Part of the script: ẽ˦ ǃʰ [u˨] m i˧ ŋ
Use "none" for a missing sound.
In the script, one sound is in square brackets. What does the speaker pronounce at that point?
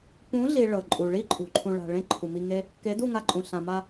u˨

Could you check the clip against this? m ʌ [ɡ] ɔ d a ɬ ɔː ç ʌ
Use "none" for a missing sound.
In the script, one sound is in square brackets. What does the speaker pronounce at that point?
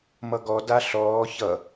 ɡ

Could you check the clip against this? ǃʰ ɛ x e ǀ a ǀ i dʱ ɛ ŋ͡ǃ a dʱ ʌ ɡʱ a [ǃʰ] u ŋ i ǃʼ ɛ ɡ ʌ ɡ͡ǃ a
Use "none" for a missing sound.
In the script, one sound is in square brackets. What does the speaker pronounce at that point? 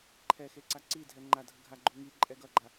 ɡ͡ǃ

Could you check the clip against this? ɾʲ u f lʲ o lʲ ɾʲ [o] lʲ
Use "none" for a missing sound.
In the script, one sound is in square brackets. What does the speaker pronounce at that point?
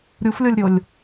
o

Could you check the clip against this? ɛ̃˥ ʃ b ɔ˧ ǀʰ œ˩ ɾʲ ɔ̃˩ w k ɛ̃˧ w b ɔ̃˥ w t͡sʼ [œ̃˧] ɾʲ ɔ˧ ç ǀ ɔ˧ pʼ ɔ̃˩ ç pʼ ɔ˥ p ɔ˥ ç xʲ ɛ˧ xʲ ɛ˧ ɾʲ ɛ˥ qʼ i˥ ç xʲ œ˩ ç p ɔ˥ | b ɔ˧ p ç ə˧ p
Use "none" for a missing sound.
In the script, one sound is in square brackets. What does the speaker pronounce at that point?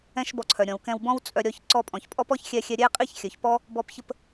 œ˧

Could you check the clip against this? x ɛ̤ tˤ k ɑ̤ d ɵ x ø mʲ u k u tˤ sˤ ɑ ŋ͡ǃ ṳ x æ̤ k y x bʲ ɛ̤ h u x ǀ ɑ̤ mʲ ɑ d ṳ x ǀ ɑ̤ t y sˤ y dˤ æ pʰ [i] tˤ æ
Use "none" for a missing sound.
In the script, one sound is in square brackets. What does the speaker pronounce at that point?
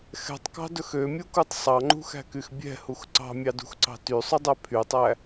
y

